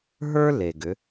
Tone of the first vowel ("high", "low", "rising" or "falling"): high